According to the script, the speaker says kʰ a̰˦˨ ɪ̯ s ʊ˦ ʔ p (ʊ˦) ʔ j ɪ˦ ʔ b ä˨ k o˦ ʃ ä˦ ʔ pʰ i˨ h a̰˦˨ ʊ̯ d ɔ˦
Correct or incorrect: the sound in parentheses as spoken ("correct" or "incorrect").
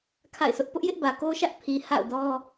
correct